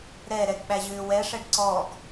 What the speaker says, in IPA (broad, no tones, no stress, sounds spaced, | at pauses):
ɾ ɛ ɾ ɛ ɡ ɓ æ ʑ ʏː w ɛ ʂ ɛ ɖ ǀ ɔ ɡ